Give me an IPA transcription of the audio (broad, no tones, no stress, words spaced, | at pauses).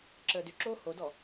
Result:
ǁəːdʏǁoː hodɔ